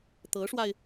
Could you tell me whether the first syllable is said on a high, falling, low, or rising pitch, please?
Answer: rising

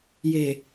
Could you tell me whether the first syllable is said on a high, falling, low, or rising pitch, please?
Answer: low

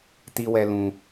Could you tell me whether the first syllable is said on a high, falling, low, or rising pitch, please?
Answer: high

